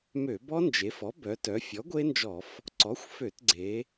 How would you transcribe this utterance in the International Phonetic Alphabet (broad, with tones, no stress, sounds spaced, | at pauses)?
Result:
m ø˧˩˧ b ɔ˦˥ n d͡ʒ e˩˧ f ɔ˩˥ b œ˩˧ t œ˩˧ fʲ ɔ˩˥ ɡʷ e˦˥ n d͡ʒ ɔ˧˩˧ f | ǀ ɔ˩˥ xʷ f ø˧˩˧ t ɡ͡ǀ e˩˧